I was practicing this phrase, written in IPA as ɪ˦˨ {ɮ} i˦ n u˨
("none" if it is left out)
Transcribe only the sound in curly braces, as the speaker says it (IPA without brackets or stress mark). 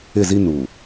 z